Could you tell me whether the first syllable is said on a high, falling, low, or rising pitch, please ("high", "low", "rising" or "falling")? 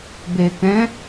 low